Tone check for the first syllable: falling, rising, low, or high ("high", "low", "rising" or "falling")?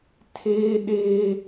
high